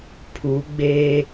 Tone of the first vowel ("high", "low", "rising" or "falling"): rising